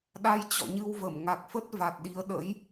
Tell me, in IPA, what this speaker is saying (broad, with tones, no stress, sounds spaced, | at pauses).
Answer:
ɗ a˧ j t͡ɕ ɔ̰˧˨ ɲ ɨ˧ w v ə˧˩ m ŋ a˨˩ k̚ f ə˦˥ t̚ v a˨˩ t̚ ɗ i˨˦ ə̯ ɗ ə̰˧˥ j